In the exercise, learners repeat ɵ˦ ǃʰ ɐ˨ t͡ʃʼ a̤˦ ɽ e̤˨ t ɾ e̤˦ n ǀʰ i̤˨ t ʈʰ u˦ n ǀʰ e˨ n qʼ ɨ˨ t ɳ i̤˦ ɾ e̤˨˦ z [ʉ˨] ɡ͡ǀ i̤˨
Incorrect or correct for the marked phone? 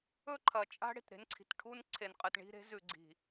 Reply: correct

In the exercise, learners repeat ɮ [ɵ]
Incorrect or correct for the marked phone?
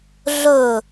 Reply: correct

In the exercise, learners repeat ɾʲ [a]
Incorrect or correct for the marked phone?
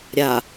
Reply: correct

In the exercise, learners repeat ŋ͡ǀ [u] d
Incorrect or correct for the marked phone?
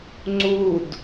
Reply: correct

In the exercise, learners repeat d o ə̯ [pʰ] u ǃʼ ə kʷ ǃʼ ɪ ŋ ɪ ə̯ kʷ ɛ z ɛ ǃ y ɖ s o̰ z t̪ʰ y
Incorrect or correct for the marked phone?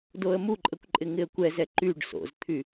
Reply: incorrect: m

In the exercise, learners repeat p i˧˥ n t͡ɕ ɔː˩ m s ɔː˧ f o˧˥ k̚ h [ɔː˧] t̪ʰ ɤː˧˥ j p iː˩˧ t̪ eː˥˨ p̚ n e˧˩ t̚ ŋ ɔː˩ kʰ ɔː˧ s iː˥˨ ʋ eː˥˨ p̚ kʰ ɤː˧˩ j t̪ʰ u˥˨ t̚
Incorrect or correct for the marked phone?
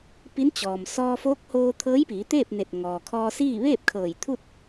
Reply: incorrect: oː˧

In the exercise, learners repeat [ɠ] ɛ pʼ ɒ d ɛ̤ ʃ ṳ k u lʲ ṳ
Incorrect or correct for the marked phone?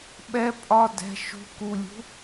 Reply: incorrect: ɓ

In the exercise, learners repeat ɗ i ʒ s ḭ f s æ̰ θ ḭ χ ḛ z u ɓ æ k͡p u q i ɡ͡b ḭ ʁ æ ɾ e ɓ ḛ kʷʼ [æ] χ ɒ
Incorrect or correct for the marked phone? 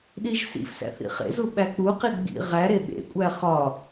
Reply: correct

